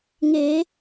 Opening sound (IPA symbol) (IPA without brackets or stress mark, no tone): ŋ